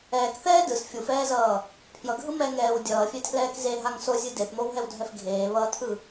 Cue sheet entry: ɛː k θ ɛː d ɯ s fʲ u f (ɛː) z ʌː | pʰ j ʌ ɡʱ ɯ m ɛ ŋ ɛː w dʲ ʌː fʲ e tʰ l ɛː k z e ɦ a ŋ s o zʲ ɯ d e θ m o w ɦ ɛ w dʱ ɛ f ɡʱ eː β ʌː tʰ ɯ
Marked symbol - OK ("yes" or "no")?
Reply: yes